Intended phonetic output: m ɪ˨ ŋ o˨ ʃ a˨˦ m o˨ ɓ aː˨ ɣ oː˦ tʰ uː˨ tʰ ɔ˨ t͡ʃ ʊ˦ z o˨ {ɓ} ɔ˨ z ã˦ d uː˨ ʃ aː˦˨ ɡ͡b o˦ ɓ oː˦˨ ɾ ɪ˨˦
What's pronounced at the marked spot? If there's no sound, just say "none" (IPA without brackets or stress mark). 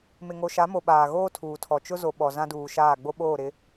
ɓ